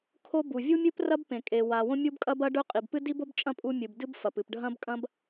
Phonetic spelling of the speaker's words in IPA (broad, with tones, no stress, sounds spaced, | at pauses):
kʰ o˥ b u˩ vʲ u˥ mʲ ɨ˥ p r ɐ˥ b p ẽ˩ kʼ e˩ w a˩ w õ˥ mʲ u˥ b kʼ ɐ˥ b ɐ˥ ɖ ɵ˥ qʼ i˩ b p ɨ˥ d i˥ b o˥ b t͡ʃʼ ɐ̃˥ pʼ u˥ mʲ ɨ˩ b d ɨ˥ b f ɐ˩ p ɨ˩ p ɖʱ ɐ̃˥ b kʼ ɐ̃˥ b